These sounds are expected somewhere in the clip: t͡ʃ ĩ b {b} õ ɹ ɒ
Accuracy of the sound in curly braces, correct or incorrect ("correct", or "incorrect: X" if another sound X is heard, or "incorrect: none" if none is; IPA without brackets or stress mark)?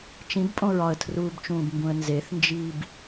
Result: incorrect: pʼ